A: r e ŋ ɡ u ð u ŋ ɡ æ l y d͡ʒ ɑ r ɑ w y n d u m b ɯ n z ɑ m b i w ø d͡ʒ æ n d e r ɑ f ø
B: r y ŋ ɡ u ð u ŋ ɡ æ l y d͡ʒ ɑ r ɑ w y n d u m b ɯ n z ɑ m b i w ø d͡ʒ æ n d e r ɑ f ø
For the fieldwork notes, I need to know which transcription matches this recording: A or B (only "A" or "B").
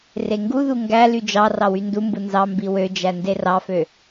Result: A